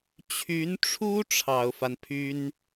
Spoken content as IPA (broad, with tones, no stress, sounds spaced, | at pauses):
t͡ɕʰ y˧˥ n ʈ͡ʂʰ u˥ ʈ͡ʂʰ ɑ˨˩ ʊ̯ f a˦ n pʰ y˥ n